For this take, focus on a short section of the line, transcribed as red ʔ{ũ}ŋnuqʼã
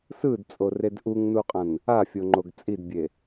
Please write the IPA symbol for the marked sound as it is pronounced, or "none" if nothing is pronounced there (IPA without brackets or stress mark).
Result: u